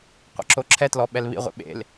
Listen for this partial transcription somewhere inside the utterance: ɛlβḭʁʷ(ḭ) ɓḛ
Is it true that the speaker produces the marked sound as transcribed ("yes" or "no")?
no